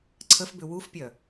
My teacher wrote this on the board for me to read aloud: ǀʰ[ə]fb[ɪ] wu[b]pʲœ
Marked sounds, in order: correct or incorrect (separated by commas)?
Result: correct, incorrect, incorrect